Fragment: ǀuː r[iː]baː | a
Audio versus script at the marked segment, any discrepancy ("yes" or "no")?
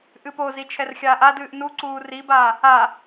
yes